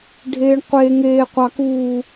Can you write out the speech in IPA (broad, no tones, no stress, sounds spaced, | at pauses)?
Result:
ɖʱ eː ɳ qʷ eː ŋ eː qʷ ɑ k uː